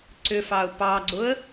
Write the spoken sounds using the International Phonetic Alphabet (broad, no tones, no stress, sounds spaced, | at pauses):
ǀ ʏ f ɑ ʊ̯ p ɑ ɡ͡ǀ ʊ ə̯